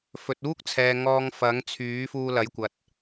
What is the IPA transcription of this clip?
f ɵ˨ t̚ uː˥ k̚ t͡sʰ ɛː˨ ŋ ɔː˧ ŋ f ɐ˨˥ ŋ t͡sʰ yː˨˥ f uː˧ l ɐ˨˥ j kʷ ɐ˨ t̚

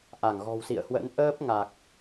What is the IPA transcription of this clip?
ʔ a˧˩ ŋ ɣ ɔ̤˨˩ w s ḭ˧˨ ə̯ h w ə̰˧˥ n ʔ əː˦˥ p̚ ŋ a˨˩ k̚

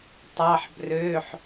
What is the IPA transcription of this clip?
tˤ ɑ˩˧˩ ħ b r øː˩˧˩ ħ

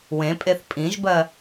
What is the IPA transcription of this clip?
w ẽ pʼ e θ pʼ ĩ ʒ b ɜ

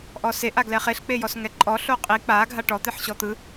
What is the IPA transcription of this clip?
ʔ ɔ s e ʔ a ɡ l ɛ χ e ɬ k͡p e j ɔ s ŋ ɛ ǃʼ ɔ ɬ o qʼ i k͡p a ɡʱ a ʈ ɔ t̪ e ħ ɕ ɔ t̪ ɯ

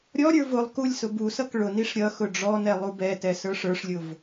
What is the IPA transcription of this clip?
ɾʲ ɔ ɾʲ ə˞ v ʊ lˠ k u lʲ s ʊ b u s ʌ k ɭ ʊ n i ʂ ɾʲ ʌ x ʊ ɖ͡ʐ ɔ n ɛ lˠ u b ɛ t ɛ s ə˞ ʂ ə˞ ʂ lʲ ʊ v

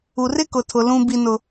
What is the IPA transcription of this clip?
u˨ r ɪ˦ k ʊ˨ tʰ ʊ˨ l ũ˦ b i˦ n ʊ˦

